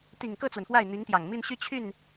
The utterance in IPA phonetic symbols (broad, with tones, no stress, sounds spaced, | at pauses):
t̪ i˨˩ ŋ k ɤ˥˩ t͡s w ə˩ n f w a˥˩ ɪ̯ n̪ i˧˥ ŋ t̪ j ɑ˨˩ ŋ m i˥˧ n ɕ y˥˧ t͡ɕʰ y˥˩ n